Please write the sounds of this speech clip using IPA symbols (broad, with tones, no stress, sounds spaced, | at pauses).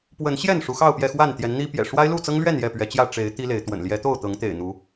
p w ə˨˦ n ɕ j ɛ˥˨ n ʂ u˨˦ x ɑ˥˨ ʊ̯ p j ɛ˥˨ x w a˥˨ n t̪ j ɛ˨˦ n n̪ i˦ p j ɛ̰˨˩ ʂ w a˦ ɪ̯ l u˥˨ t͡s ɤ˦ ŋ l ɥ ɛ˥˨ n j ɛ˥˨ p ɥ ɛ˨˦ t͡ɕ j ä˥˨ ʈ͡ʂ e˨˦ ɪ̯ t̪ i˦ l e˨˦ ɪ̯ t̪ w ə̰˨˩ n l j ɛ˨˦ t̪ o˥˨ ʊ̯ t̪ ɤ˨˦ ŋ t̪ ḛ˨˩ ɪ̯ n̪ u˨˦